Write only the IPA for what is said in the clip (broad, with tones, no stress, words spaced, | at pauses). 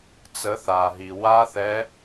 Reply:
t͡sə˨˦θaː˩ɦi˩ wa˦˥ θɛ˨˦